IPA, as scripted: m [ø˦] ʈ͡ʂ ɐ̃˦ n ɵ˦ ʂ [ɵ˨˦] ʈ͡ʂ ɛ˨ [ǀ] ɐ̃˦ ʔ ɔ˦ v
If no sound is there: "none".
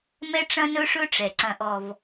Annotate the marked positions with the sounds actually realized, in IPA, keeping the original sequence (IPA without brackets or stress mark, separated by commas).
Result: ɛ˦, ɵ˦, ǀ